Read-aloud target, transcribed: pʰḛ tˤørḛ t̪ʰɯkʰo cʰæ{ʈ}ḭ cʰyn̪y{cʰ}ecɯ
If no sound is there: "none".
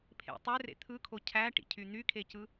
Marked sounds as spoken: ʈ, kʰ

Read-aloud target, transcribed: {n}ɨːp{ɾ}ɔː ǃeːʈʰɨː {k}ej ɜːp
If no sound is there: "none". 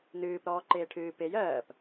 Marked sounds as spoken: n, ɾ, p

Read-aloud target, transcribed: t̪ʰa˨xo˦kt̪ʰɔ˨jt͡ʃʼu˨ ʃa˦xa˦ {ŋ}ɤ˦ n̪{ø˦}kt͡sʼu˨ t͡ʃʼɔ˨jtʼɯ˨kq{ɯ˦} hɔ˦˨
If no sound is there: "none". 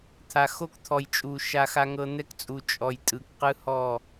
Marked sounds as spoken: ŋ, ɛ˦, ɯ˦

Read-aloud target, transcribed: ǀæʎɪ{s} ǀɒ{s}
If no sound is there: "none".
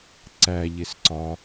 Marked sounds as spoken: s, none

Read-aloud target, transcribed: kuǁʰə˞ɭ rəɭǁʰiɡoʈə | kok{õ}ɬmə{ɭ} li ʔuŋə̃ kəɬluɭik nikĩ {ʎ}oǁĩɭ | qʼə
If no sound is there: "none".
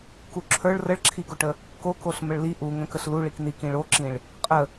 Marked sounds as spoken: o, ɭ, ɭ

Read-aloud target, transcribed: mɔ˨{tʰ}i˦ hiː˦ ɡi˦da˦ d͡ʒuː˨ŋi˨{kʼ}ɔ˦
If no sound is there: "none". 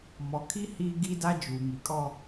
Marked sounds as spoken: kʰ, kʼ

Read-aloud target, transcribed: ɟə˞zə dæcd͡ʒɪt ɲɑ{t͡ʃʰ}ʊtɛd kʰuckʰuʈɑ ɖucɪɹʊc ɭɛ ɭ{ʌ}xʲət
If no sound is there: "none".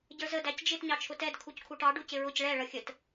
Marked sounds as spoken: t͡ʃʰ, ʌ

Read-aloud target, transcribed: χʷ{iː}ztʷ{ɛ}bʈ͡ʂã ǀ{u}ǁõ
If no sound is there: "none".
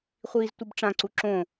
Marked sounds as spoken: iː, ɨ, u

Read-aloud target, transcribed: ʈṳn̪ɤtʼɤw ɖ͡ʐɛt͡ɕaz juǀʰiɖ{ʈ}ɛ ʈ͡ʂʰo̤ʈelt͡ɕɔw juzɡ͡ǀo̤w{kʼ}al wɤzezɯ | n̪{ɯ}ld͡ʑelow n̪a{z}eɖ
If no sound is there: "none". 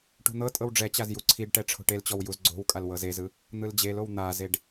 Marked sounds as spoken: ʈ, kʼ, ɯ, z

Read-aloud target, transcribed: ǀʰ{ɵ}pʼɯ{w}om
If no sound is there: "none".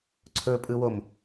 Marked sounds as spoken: ɵ, w

